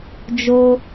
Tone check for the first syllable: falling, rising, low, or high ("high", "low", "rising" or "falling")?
high